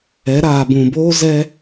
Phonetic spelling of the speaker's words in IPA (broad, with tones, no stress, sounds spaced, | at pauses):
ɛ˨˦ ɾ aː˨ b ũ˨ b oː˦ z ɛ˦